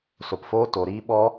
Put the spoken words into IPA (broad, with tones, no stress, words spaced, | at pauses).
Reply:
so˨pfoː˦ to˨ɾiː˦ ɓɔ˦